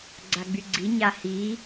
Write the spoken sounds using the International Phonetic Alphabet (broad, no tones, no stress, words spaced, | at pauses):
ɡ͡ǀaɡ͡byɡ͡ǀi ɲahi